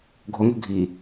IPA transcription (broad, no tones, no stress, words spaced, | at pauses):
ɡʱoŋo̤ ɡʱi